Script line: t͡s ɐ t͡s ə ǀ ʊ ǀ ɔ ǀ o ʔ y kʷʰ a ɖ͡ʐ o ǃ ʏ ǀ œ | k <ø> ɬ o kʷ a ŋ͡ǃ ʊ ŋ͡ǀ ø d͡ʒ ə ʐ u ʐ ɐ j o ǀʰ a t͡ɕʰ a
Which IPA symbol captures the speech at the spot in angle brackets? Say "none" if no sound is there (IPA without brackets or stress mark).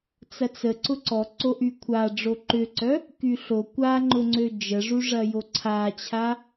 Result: y